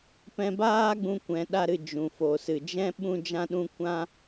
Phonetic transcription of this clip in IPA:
pɛ̃˧baː˦ɡ͡bũ˧ kʷɛ̃˧ɗa˦ɾɨ˧ d͡ʒũ˨fo˨sɨ˨ d͡ʒɛ̃˦ ɓũ˦d͡ʒã˦ɗũ˦ kʷã˦

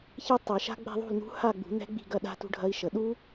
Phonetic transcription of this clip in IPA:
çe˦˥tˤe˨˩˦ʃa̤˦˥ ɡ͡bɛ̤˥˧ðˤṳ˥˧lnṳ˦˥ ha˥˧ɡ͡bṳ˨˩˦nɛ̤˦˥ ɡ͡bi̤˥˧ɡɐ˥˧ɗa̤˦˥ tṳ˦˥ɖʱɐ˦˥i̯ʃə˨˩˦ ɗu˦˥

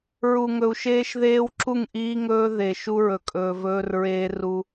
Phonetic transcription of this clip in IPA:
ɹu˨ŋɵ˨u̯ʃeː˦ʃðeː˦w ǁu˦˨ŋʔiː˦ŋɵː˦ðe˨ ʃu˦ɹɵ˨kʼɵː˨vɵː˦r ɹeː˦ru˦

